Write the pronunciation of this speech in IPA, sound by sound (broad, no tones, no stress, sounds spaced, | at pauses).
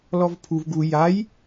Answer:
l ɔ v pʰ u v ɡ u j a j